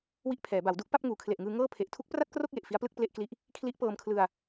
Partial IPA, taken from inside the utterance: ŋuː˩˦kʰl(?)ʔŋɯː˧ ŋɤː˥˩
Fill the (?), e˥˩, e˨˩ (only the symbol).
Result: e˨˩